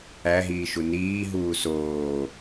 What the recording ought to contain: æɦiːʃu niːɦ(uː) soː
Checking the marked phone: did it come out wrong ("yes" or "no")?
no